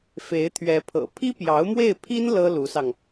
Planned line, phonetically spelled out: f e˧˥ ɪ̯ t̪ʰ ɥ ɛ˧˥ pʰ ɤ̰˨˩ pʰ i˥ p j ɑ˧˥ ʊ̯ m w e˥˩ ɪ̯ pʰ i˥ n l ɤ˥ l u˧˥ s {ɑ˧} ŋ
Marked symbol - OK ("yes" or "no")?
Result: yes